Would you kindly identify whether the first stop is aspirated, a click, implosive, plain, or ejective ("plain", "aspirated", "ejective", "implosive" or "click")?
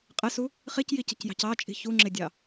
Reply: ejective